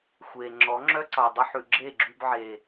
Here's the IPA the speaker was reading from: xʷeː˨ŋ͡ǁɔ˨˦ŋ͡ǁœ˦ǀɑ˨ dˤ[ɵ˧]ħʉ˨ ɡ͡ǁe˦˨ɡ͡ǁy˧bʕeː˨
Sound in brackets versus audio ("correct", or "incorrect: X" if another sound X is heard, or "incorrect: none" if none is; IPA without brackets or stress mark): correct